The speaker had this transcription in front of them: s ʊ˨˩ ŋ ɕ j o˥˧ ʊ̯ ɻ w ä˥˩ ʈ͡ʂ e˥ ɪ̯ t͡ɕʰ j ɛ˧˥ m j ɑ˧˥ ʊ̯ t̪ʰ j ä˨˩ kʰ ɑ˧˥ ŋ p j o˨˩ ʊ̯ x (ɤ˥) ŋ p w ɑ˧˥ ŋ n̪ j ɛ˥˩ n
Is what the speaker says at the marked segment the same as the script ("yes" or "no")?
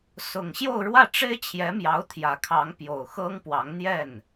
yes